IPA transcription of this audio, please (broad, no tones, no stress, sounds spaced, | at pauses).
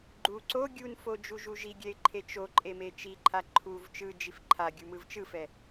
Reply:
ɡ͡ǃ u ǀ o ɡʲ u n f o d͡ʒ u ʒ u ʒ i ɡʲ ɛ ɪ̯ ǃʰ e t͡ʃ o ǃʼ e m e t͡ʃ i ǃʰ a ǃʰ u v t͡ʃ ɯ d͡ʒ i f ǃʰ a ɡʲ u m ɯ v t͡ʃ ɯ f ɛ